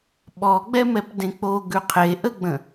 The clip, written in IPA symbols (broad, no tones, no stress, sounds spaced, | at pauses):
ɓ ɔ ɡ͡b ɛ m ɛ p d ẽ k͡p o ɡ ʉ qʰ e ʔ ə ɡ͡b ə̃